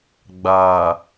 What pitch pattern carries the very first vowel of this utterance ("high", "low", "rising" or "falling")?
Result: low